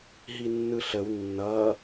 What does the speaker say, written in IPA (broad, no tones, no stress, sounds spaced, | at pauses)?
ɦ i nː ɯ ɬ ə w nː ʌ